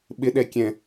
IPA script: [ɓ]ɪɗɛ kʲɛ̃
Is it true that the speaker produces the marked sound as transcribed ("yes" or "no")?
yes